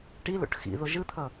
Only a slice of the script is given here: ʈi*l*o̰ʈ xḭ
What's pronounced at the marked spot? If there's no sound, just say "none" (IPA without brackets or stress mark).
l